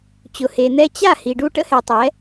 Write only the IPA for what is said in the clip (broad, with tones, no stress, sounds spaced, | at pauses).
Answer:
t͡ɕ ʊ˨ h e˨ n̪ ɛ˧ t͡ɕ a˦˨ h i˨ ɖ u˧ ʈ ə̰˦ h ɛ˨ tˤ ɛ˨˦